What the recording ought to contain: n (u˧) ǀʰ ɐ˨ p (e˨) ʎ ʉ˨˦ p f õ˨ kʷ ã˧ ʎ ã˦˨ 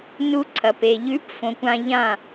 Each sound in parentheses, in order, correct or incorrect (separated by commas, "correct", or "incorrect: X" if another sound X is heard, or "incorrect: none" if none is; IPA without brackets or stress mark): correct, correct